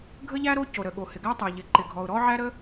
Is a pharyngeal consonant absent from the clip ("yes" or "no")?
no